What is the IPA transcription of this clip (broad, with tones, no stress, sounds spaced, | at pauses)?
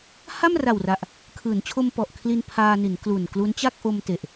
h a˥˩ m r a˨˩ w r a˨˩ ʔ | kʰ ɯː˩˦ n t͡ɕʰ o˧ m p ɔ˨˩ ʔ kʰ l i˧ n pʰ aː˧ n i˩˦ n k l u˨˩ n k l u˦˥ n t͡ɕ a˥˩ k̚ ʔ o˧ m t e˨˩ ʔ